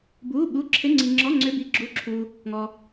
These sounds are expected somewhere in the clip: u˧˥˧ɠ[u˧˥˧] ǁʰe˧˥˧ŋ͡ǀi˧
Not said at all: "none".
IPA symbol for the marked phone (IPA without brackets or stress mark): u˧˥˧